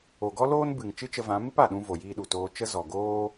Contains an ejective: no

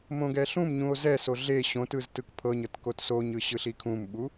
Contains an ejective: no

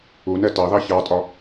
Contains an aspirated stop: no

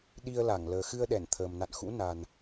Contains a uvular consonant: no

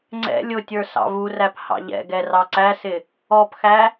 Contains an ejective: no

